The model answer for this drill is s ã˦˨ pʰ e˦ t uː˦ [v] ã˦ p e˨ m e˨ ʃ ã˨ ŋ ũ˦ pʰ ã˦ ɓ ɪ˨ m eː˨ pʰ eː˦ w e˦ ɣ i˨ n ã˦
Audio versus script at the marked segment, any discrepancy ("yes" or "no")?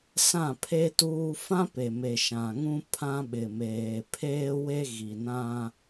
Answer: yes